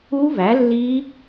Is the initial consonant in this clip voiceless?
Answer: no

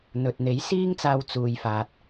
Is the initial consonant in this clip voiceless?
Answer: no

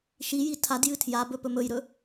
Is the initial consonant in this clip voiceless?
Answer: yes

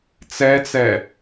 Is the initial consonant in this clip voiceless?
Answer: yes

